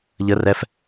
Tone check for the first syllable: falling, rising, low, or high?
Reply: high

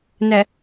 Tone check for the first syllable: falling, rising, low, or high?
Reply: low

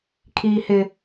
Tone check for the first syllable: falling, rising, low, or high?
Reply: high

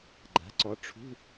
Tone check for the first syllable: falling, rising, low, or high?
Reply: rising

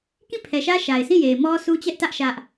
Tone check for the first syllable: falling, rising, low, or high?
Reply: falling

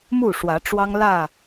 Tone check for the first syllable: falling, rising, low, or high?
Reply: falling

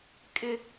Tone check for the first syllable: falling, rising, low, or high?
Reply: high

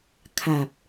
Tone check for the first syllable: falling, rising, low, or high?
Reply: low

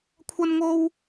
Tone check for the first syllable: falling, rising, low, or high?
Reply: high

